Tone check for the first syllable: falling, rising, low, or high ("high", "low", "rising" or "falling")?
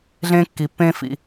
high